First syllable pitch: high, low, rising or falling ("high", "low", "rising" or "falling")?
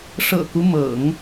low